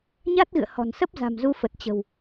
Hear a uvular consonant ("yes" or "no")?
no